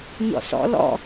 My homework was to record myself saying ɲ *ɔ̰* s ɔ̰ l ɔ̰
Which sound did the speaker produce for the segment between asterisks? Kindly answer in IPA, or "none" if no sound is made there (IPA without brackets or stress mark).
ɔ̰